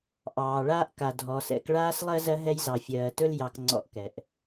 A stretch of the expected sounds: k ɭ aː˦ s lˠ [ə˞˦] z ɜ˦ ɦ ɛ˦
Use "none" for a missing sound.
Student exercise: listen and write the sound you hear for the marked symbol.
ɜ˦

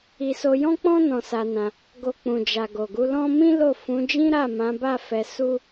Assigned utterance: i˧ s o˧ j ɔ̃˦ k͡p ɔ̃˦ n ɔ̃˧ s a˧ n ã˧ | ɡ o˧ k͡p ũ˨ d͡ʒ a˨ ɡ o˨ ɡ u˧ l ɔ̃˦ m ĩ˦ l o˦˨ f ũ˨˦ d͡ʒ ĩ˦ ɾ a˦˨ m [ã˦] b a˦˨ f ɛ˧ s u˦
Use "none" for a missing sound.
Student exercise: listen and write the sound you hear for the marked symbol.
ã˨˦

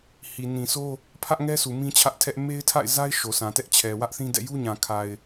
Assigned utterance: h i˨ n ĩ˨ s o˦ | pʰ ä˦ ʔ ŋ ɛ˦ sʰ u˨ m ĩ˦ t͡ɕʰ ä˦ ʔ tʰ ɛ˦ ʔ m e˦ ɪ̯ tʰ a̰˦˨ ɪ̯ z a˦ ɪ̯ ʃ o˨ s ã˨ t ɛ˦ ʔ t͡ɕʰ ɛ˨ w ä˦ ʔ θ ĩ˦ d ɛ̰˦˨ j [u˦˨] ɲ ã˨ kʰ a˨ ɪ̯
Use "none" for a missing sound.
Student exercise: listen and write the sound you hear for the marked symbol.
u˦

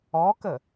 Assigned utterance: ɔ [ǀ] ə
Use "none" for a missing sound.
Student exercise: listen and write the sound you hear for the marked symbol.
k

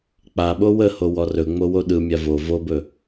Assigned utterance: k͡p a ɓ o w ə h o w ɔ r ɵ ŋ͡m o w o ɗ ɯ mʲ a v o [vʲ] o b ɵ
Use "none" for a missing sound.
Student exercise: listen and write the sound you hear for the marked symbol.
v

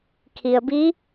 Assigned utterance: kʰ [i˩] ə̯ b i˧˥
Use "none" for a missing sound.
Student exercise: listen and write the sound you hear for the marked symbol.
i˩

